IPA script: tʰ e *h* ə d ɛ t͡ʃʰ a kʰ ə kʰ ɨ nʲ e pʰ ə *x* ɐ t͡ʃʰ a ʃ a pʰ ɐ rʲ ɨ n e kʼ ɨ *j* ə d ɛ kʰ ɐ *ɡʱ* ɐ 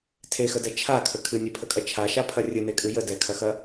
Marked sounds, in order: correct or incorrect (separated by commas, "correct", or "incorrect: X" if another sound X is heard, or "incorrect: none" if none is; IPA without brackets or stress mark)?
incorrect: x, incorrect: kʼ, correct, incorrect: x